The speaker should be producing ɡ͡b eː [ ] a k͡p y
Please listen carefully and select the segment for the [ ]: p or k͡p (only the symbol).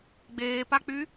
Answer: p